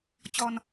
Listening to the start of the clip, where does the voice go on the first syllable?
low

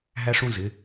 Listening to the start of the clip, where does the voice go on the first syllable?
high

